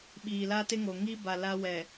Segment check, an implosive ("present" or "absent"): present